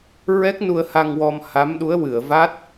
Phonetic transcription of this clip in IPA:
ɹ ɛ˦˥ k̚ n u˧ ə̯ h a˧ ŋ w ɔ˧ m h a˧˥ m ɗ u˧˥ ə̯ w ɨ˨˩˨ ə̯ v a˦˥ t̚

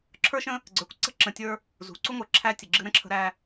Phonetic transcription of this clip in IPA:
ǁʰ ə˞˦ ʃ ə̃˦ | ɡ͡ǀ ə˞˨ kʷ ǀ ə̤˦ ǁ ə̃˨ tʲ ə˞˦ | z ṳ˨ ǀ u˦ ŋʷ ə˞˨ ǁʰ æ˦ tʲ ə˨ ɡ͡ǁ ɨ˦ ɾ ə̃˦ ǁʰ ə̤˦ ɾ æ˦

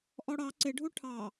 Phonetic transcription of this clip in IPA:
ʔ ɔ ɽ ɑ ǀ ɪ ɖʱ u ʈʰ ɑ

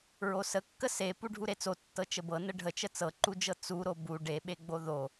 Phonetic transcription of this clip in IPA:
ɹ o s ə kː ə s e p u ɖʱ u ɾ e t͡s o tː ɤ t͡ʃ ə b ɤ n ə ɖʱ ə t͡ʃ ə t͡s ɤ ǃ u d͡ʒ ɤ t͡s u ɾ o b u ɖ e ɓ e ɡ͡b o ð o

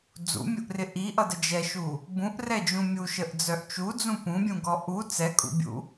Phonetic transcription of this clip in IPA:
d͡z ṵ mʲ u ʔ r ɪ ʔ i ʔ ʌ d ə d͡ʒ ɛ ʃ u | b ũ ʔ r ɛ d͡ʒ ũ mʲ u ʃ ə ʔ d͡z œ ʔ t͡ʃ u d͡z ũ p ũ bʲ ũ ɡ ɔ ʔ u t͡s ɛ kʼ ṵ bʲ ṵ

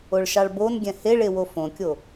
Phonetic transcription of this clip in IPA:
o ɭ ʃ ɑ ɭ b o n ɡʲ ɛ̃ h e ɭ e w o f õ kʲ o

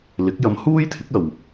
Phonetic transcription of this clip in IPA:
l ɪ˨˥ k̚ j ɐ˧ m h uː˥ j t̪ʰ ɪ˨˥ k̚ ɐ˨ w

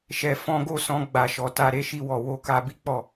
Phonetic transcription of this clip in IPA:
ʃ ɛ˨ f ɔ̃˧ ɡ o˦ s ɔ̃˧ ɡ͡b a˨ ʃ ɔ˨ t a˧ ɾ e˦ ʃ i˧ w ɔ˨ w o˧ k a˧ b i˦ k͡p ɔ˦˨

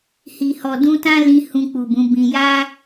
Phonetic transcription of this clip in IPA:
h i˨ h ɔ˨ d ũ˧ t ã˦ l ĩ˧ h ũ˧ k͡p u˨ b ũ˨˦ b ĩ˧ j a˦

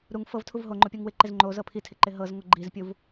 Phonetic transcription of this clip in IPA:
ɾ u ŋ f ɤ v tʰ u v ɦ o ŋ͡ǃ o pʲ o ŋ w ɪ ǃ ɪ z ŋ͡ǃ o z ɤ pʰ i tʰ ɪ ǃ ɪ ɦ ɤ z ŋ o ɡ͡ǃ i z pʲ u v

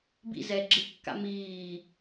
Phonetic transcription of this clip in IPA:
b ḭ z ɛ ɡ͡ǁ ɯ kː a̰ m iː

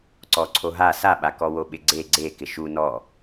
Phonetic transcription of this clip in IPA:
ǀ ɔ ǀʰ o ɦ a s a ɓ a k ɔ w o ɓ ɪ ɡ͡ǀ e ɡ͡ǀ e k ɪ ʃ u n ɔ

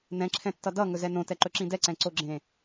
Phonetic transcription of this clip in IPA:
n ɛ̃ ǁʰ ɛ̃ tː ʌ d ʌ ŋ ɵ z ɛ n õ t ɛ ǃ ɵ ǁ ĩ d ɛ ǀ ɛ̃ ǀ o ɡ͡ǁ ẽ

